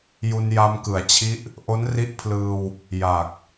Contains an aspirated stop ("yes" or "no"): yes